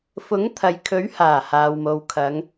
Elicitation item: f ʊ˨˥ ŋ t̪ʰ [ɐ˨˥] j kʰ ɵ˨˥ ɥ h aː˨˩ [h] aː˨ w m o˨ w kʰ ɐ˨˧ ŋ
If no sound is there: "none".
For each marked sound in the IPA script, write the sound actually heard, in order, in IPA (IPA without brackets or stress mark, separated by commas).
ɐ˨, h